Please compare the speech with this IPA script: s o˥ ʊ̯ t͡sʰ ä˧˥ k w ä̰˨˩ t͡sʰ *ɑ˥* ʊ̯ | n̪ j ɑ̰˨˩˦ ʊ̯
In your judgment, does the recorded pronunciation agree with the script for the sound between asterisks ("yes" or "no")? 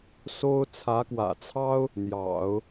yes